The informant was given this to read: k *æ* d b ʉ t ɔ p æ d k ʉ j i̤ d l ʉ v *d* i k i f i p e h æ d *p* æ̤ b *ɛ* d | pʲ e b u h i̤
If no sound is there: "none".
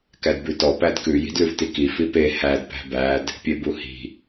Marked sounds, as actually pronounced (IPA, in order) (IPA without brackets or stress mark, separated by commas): æ, t, p, æ